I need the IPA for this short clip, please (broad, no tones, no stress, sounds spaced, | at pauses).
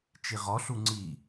t͡ʃ i ʁ ɔ ɬ u ŋ͡ǀ i